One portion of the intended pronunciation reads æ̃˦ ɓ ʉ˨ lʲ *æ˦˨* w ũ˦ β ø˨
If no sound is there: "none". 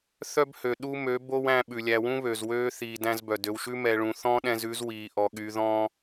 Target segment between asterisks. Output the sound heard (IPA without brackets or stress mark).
æ˨